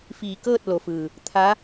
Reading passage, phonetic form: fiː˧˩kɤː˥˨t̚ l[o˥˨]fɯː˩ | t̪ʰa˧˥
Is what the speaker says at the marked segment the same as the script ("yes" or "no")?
no